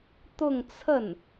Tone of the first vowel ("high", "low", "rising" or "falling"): falling